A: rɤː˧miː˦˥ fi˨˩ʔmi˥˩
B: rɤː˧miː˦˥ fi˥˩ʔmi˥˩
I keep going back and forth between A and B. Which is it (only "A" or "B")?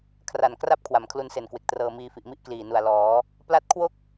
A